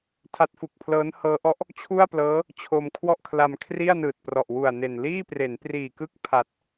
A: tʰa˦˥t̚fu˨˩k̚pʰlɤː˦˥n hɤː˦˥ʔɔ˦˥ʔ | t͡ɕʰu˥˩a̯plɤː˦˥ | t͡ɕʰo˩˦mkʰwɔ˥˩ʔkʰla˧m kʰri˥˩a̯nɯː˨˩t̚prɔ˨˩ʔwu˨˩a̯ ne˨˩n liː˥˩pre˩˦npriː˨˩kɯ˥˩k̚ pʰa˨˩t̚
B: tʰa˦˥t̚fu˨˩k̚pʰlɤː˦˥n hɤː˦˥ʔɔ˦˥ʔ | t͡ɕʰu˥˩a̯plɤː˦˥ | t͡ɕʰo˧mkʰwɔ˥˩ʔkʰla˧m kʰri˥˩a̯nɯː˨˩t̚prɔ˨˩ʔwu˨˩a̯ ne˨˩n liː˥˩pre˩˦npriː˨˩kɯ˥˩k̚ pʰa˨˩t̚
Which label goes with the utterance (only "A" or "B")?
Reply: B